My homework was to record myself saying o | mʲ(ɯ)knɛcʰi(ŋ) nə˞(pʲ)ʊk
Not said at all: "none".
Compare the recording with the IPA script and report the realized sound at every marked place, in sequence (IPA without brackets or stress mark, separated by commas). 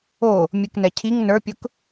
ɯ, ŋ, pʲ